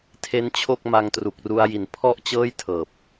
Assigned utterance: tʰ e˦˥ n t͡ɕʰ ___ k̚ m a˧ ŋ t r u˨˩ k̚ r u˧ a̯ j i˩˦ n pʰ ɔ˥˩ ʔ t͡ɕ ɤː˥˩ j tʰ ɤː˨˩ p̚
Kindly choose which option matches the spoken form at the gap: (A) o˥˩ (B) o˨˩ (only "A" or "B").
A